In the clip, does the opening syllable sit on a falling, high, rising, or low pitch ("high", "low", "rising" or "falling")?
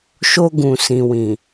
high